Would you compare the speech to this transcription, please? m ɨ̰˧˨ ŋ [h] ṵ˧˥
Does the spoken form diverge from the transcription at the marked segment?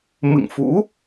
yes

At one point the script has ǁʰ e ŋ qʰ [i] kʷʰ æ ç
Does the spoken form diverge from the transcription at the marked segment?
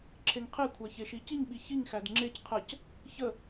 yes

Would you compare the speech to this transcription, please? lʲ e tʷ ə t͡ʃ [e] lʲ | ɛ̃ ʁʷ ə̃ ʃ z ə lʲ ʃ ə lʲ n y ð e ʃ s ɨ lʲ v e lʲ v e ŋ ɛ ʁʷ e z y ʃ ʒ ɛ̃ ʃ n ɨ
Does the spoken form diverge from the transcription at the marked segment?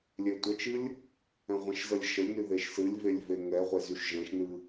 yes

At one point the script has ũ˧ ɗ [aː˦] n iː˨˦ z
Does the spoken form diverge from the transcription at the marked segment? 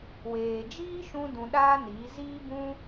no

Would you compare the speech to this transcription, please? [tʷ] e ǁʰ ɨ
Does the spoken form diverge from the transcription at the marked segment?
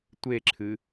no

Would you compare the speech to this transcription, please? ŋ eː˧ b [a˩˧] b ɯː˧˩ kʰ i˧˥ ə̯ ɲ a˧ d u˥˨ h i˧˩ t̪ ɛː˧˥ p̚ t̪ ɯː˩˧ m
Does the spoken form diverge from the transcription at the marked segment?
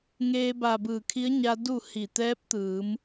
yes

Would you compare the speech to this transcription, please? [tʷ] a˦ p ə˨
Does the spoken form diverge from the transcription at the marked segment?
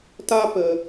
yes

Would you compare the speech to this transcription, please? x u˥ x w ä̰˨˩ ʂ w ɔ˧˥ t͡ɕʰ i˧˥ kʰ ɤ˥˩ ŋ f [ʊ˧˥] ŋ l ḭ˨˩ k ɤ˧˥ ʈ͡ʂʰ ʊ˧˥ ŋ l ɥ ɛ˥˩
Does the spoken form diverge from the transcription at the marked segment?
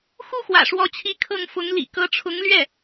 no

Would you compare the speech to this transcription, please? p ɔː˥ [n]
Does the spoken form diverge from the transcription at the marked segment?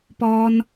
no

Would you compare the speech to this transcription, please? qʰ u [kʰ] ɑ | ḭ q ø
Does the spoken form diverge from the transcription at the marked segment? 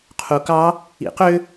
yes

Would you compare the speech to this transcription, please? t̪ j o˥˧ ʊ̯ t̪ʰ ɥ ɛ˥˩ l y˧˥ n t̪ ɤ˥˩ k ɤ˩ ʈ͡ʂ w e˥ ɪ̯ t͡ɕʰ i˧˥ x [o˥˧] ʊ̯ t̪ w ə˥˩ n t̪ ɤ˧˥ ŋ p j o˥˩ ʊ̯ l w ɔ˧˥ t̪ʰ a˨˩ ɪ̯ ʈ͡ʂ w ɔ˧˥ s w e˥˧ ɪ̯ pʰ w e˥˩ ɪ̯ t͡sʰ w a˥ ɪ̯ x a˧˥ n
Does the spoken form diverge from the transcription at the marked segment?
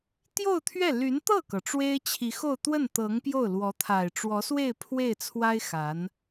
no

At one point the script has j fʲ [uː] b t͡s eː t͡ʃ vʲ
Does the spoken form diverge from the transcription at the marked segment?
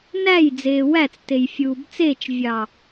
no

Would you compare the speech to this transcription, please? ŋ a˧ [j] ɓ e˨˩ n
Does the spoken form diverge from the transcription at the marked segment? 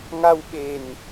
yes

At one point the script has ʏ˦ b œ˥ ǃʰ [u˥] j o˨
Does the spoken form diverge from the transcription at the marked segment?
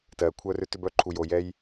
yes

